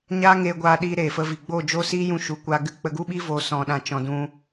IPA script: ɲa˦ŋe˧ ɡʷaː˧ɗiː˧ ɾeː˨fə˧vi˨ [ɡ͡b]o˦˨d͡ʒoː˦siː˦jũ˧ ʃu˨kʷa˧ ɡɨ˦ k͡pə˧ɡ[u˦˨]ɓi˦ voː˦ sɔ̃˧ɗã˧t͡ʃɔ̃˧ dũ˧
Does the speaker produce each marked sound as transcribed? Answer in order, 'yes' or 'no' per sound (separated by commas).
yes, no